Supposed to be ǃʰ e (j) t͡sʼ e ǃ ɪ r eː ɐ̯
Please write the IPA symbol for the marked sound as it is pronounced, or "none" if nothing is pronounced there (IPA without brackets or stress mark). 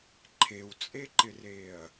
w